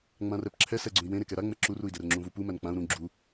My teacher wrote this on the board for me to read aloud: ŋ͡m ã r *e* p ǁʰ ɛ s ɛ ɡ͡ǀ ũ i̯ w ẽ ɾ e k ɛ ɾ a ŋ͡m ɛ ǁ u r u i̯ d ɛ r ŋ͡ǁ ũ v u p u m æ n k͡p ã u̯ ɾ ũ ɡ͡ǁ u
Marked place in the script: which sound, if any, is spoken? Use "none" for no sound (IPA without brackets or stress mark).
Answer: ɛ